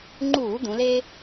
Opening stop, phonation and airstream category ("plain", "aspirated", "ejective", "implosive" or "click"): click